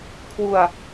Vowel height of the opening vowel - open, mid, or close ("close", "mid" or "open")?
close